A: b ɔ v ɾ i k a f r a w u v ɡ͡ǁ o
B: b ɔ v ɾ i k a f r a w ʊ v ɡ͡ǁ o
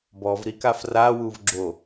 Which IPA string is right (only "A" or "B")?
A